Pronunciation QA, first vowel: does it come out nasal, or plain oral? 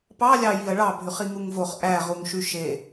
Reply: oral